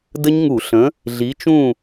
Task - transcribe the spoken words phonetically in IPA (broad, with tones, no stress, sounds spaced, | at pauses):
d ə˦˥ ɲ ŋ u˧˩˧ ɬ ə̃˨˥ | ɮ i˨˥ t͡ʃ ũ˥˨